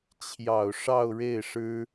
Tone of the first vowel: low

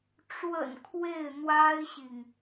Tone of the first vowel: low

